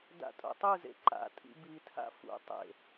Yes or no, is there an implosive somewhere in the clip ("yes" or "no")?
no